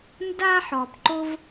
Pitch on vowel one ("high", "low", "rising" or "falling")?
high